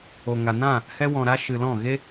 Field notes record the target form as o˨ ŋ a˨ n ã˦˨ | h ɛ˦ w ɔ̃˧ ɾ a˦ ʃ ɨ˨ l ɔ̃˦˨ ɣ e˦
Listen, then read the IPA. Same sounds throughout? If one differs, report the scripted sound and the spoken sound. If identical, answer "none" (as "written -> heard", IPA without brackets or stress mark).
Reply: none